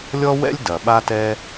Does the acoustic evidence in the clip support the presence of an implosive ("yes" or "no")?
yes